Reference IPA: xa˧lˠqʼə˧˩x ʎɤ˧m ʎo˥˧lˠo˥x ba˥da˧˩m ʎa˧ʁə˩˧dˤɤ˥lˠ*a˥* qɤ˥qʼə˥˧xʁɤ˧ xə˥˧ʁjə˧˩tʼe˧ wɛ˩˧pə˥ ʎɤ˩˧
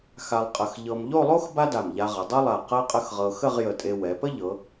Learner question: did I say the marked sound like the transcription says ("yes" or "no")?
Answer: no